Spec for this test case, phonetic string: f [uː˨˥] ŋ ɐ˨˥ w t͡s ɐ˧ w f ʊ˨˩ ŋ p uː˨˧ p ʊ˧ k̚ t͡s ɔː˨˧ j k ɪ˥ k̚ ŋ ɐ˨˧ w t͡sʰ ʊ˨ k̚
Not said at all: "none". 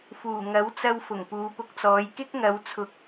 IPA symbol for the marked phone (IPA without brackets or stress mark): uː˨˩